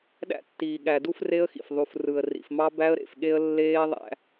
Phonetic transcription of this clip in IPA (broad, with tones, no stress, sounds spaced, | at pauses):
ɗ æ̰˦ tː iː˨ ɠ æ˨ d u˦ f r e˦ ə̯ x ḭ˨ f ðˤ u˨ f r ɯ˨ ə̯ r ḭ˨ f m ɑ˦ b æ˦ ə̯ ɾ ḛ˨ f ɠ e˦ ə̯ lː eː˦ ðˤ æ̰˦